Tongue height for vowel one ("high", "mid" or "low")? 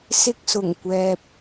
high